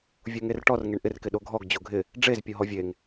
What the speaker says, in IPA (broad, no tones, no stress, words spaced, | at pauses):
vʲoŋerʈɔr ŋeɳʔɪr kɪɗoɡʱɔɡ d͡ʑoɡʱɪ | ɖ͡ʐez pʲoɦɔvʲeŋ